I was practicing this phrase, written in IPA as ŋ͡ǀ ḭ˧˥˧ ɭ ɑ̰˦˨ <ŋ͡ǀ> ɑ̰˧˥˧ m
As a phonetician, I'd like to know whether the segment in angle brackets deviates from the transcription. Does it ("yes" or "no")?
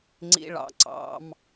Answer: yes